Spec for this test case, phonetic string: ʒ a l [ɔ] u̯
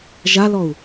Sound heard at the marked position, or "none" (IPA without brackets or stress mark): ɔ